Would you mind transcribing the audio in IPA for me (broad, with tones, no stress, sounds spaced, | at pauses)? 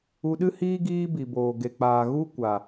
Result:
u˧ ɗ ɨ˦ h iː˦ ɡ iː˦ b i˨ b oː˨ ɡ e˨ k͡p aː˨ ɣ u˦ kʷ a˨